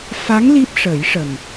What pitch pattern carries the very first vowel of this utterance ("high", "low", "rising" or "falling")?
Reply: rising